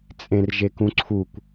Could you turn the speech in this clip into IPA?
t͡sʼ ẽ r ʒ e k ũ ǀʰ u kʷ

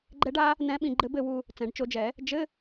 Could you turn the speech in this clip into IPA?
ɡ͡ǃ ɛ˧˥ ɖ a˧˥ | n ɛ̃˧˥ ɓ ĩ˧ ɡ͡ǃ ɘ˧˥ b ɘ˨˩˦ w u˧ | t͡s ɛ̃˨˩˦ ɖ t͡ʃ o˧˥ d͡ʒ ɛ˨˩˦ | d͡ʒ ɘ˧˥˧

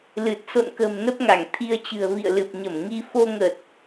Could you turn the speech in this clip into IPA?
l ɨ˨˩ t̚ s o̰˧˨ n k ə̤ː˨˩ m n ə˦˥ p̚ ŋ a˧˩ ŋ t̪ʰ i˧ ə̯ t͡ɕ ɨ̤˨˩ ə̯ v ḭ˧˨ ə̯ l ɨ˨˩ p̚ ɲ ə˧˩ m ŋ i˧ f o˧ ŋ ə˨˩ t̚

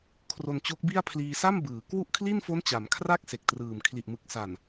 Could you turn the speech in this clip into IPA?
kʰ r o˧ n t͡ɕ o˦˥ k̚ b i˥˩ a̯ pʰ l iː˧ s a˥˩ m b ɯː˩˦ k w u˥˩ ʔ kʰ l i˥˩ n f o˦˥ n t͡ɕ a˩˦ m kʰ r a˥˩ k̚ s e˨˩ k̚ t r ɯː˨˩ m kʰ l i˨˩ ʔ m ɯ˨˩ k̚ s a˨˩ n

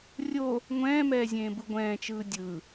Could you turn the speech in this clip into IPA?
rʲ o | ŋʷ ɛ̃ː m ɛː zʲ ẽː b ɯ ɡʷ ɛ̃ː t͡ʃ ɯː dʲ ɯ

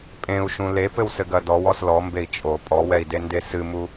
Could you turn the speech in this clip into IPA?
pʼ ẽ u̯ ʃ ũ l e p ɘ w s ɘ ɡ ɐ d ɔ w ɔ s l ɔ m b e i̯ t͡ʃʼ o pʼ ɔ w ɛ i̯ d e n d e s ɨ m u

